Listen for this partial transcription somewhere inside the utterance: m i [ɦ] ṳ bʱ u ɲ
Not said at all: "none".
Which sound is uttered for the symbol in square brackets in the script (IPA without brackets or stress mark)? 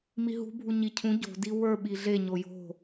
ɦ